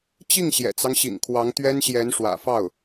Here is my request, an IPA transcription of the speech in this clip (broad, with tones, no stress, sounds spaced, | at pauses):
t͡ɕ i˥˩ ŋ ɕ j ɛ̰˨˩ t͡s ɑ˦ ŋ ɕ ḭ˨˩ ŋ kʰ w ɑ˧˥ ŋ t̪ ɥ ɛ˥ n ɕ j ɛ˧˥ n ʂ w ä̰˨˩ f ɑ˥˩ ʊ̯